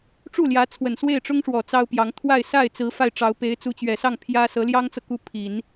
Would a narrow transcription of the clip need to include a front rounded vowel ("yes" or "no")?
no